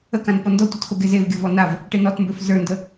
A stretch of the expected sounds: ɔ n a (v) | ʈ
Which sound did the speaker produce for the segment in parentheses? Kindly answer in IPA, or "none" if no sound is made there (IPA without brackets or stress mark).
v